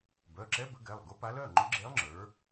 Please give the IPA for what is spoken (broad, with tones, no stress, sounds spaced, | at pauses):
b œ˩˧˩ ǁ ɛ˧˥ b ə˩˥ ɡ ɛ˩˧˩ lˠ ɡ ʊ˧˥ p a˧˥ l œ˩˧˩ ŋ͡ǃ ʊ˧˥ ɡ͡ǁ e˧˥ lˠ ŋ͡ǁ ə˞˩˥